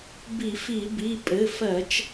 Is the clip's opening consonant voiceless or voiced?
voiced